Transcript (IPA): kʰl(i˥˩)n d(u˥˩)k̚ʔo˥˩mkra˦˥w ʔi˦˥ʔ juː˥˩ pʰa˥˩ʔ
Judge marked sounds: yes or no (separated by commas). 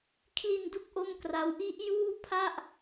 no, yes